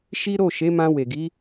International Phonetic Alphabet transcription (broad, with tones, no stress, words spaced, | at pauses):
ʃi˦ ɾo˦˨ʃe˨˦mã˧ we˨ɡi˨˦